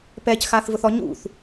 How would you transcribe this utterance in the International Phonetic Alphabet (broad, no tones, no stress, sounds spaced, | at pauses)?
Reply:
p ɛ c x aː θ v ʊ θ ɔ ɲ ṵ θ